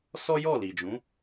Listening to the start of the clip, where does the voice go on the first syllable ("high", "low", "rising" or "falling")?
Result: high